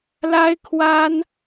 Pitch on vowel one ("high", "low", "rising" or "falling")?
high